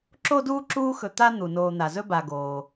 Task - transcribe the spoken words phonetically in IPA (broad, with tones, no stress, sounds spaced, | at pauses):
ǁ o˥ d uː˥ ǁ uː˦ x ɵ˨ t̪ a˥ n̪ u˩ n oː˨ n̪ a˩ z ɵ˦ b a˩ ɡ oː˩